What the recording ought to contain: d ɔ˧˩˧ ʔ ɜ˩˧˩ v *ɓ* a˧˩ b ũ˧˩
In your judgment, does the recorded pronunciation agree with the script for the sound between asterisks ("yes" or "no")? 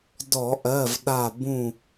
no